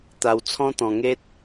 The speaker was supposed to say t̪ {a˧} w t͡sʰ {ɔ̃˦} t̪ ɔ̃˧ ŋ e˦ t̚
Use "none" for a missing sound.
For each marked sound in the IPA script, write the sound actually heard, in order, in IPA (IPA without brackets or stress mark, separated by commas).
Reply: a˧, ɔ̃˦